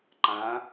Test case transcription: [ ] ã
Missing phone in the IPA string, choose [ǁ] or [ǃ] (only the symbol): ǃ